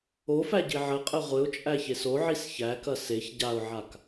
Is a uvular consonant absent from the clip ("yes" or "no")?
no